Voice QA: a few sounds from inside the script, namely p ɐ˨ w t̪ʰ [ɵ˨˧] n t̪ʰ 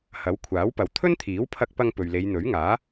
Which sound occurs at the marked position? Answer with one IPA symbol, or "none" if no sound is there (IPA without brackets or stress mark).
ɵ˥